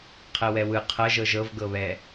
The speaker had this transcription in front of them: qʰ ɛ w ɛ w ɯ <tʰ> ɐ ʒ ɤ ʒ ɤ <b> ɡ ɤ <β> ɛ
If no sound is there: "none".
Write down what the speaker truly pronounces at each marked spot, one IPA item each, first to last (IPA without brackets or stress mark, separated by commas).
qʰ, v, β